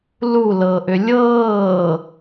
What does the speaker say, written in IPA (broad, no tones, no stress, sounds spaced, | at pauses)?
l u l ɤː ʔ ʏ lʲ ɤː